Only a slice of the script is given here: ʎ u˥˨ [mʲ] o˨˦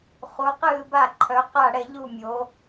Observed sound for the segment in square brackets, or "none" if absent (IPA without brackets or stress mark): mʲ